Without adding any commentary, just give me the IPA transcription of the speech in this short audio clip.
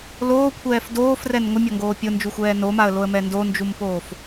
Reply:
l oː kʷʰ ɛː f d oː f r ɛ n ŋʷ ɪ mʲ ɔ ŋ ɡ oː pʲ ʊ n d͡ʒ u xʷ ɛː n o m a ə̯ l o ə̯ m ɛ n d o n d͡ʒ u m p oː f

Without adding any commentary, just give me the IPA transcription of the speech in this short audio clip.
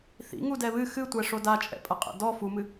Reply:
θ ḭ ŋ u d ɛ β ɨ x ɨ tʷ ɛ ʂ o d a t͡ʃʼ ɛ̰ pʼ ɐ qʼ ɛ̰ d ɔ f u m ɨ

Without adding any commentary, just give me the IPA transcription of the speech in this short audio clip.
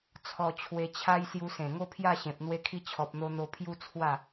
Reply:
t͡sʰ ɔ˧ t͡ɕʰ w e˧ t͡ɕʰ a˦ j s j u˧ s ẽ˨˩ ŋ o˥˧ pʰ j a˥˧ ɕ ẽ˨ p̚ n̪ w e˧ kʰ i˧ t͡ɕʰ ɔ˨ p̚ n̪ o˧ n̪ o˧ pʰ j u˦ t͡sʰ w a˥˧

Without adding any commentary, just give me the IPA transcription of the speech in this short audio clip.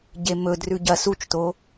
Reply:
ɟ e m ɵ d r ʉ ɟ ɐ s u t͡ʃ t o

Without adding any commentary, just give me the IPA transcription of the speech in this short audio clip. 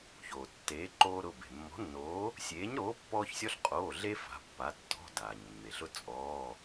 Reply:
ç oː˩ tː eː˨˥ ǃ oː˦ ɾ ʊ˩˧˩ b e̤˩ mː ɔ̤˨˥ nː oː˨˥ | sʲ eː˨˥ ɲ ɾ oː˨˥ pː ɔː˦ ç sʲ ɔ˦ ɬ qʼ oː˩˧˩ ɮ e˦ f a̤˩˧˩ pː a˨˥ tː ɔ̤˩˧˩ d aː˩ ɲ mː e˩ ɬ ʊ˦ t͡sʼ ɔː˩˧˩

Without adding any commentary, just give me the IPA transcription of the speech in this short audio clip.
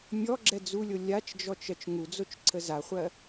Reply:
mʲ ɔ ɡ͡ǁ ɛ d͡z u lʲ o lʲ a t͡ʃ d͡ʒ ɔ t͡ʃ ɜ t͡ʃ ŋ u d͡z o t͡ʃ ǀʰ ə z a χʷ ɜ

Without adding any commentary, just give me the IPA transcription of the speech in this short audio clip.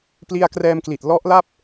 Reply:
p l i˧ a̯ k r ɛː˧ m k l i˨˩ t̚ l ɔ˦˥ ʔ l a˥˩ p̚

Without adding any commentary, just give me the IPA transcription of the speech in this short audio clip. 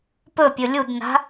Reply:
p ɵ pʲ ɵ lʲ u d n a̤

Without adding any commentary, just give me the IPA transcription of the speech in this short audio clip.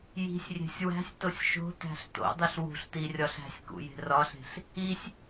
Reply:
j i̤ sʲ rʲ e̤ sʲ w æ̤ sʲ t o sʲ ʃ o̤ t æ̤ ɬ t o̰ dˤ i ɬ w ṳ ɬ t i rʲ ɒ ɬ æ̤ sʲ k ṵ j e̤ r ɒ ɬ e̤ ɬ | i sʲ

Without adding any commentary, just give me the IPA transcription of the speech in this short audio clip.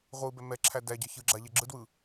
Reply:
ʁʷ ɯ b ɛ m ɛ ǁʰ æ d æ ɟ ɜ ç ɯ ɡ͡ǁ a ʎ ɛ ɡ͡ǁ ɯ d w ɯ

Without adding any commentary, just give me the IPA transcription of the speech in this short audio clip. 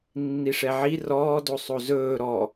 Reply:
nː i ʂ ɛ ʕ i r ɔː d o sˤ o z ɵː ɾ ɔ

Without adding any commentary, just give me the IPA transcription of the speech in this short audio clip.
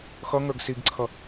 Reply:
x ʌ ŋ ə˞ ɡ s i ɡ ǀʰ ʌ

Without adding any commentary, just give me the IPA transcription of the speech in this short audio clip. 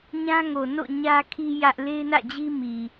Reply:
ɲ ã˦ ŋ o˨ n o̰˦˨ ɲ ä˦ kʰ i˦ j ä˦ ʔ l e˦ ɪ̯ n ä̰˦˨ d͡ʑ i˦ m i˨

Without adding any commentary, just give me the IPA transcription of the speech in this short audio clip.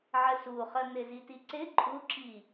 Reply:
ʕ ə s u χ ə n̪ ɪ z i t i ǀ ɪ ǃʼ u ǁ i

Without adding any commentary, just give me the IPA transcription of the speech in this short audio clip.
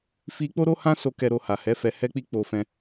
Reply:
f i˦ k͡p o˦ ɾ o˦ h ã˦ s o˧ k ɛ˧ ɾ o˧ h a˨ h ɛ˨˦ f ɛ˧ h ɛ˦ k͡p i˦ k͡p o˦ f ɛ̃˦

